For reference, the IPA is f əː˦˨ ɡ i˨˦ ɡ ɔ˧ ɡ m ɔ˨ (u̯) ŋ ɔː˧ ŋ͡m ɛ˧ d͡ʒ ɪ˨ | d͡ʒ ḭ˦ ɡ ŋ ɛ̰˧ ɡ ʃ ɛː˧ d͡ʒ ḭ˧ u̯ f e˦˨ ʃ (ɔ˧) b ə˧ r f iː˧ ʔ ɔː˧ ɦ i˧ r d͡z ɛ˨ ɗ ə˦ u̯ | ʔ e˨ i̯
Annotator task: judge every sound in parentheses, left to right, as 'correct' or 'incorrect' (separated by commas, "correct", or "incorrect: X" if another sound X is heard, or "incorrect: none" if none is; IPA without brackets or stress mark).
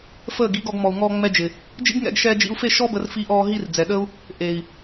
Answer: correct, incorrect: ɔ˦